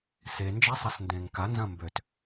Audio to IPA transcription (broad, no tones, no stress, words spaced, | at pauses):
se nd͡ʒasˤasndẽːŋka nzɐ̃mbøt